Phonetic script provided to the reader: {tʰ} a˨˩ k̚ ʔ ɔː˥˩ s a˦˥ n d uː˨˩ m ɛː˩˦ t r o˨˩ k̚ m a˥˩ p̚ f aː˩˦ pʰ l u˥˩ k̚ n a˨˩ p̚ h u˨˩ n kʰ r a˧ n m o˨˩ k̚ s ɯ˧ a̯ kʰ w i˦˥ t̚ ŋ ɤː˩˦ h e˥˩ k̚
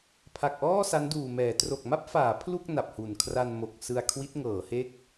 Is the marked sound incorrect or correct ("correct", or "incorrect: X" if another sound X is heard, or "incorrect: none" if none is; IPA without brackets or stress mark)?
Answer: incorrect: pʰ